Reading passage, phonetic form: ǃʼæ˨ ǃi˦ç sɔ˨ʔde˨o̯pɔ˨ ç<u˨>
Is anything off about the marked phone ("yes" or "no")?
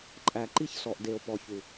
no